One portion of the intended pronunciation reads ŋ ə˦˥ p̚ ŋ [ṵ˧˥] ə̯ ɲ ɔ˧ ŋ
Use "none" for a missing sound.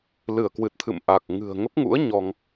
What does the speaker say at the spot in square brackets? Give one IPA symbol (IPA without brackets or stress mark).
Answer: ṵ˧˥